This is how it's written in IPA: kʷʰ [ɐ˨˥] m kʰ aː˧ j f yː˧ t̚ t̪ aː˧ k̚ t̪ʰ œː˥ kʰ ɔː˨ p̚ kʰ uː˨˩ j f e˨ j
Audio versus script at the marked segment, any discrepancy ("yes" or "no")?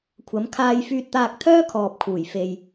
no